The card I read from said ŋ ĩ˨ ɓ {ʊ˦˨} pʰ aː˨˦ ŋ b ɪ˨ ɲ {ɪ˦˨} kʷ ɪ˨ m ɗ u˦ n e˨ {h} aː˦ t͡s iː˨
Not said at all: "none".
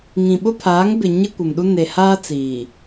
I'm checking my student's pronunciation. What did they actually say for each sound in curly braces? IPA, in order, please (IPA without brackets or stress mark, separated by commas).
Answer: ʊ˦, ɪ˦, h